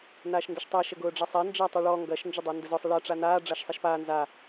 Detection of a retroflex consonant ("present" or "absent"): present